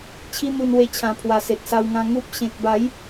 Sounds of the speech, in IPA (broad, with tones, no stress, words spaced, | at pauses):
t͡ɕʰi˦n̪u˧nwe˧t͡ɕʰã˨˩ pʰwa˨˩se˨t̚sa˧wŋã˧ ŋu˦p̚ ɕẽ˨k̚ba˨˦j